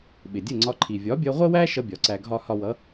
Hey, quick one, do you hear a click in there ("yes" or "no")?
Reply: yes